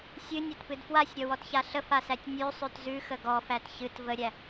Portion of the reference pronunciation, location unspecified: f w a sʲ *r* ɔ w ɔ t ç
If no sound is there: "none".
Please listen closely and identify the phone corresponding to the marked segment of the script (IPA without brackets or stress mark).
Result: ɾʲ